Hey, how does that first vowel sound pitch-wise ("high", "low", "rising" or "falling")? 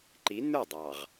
rising